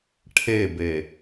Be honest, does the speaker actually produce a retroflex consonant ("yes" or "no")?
yes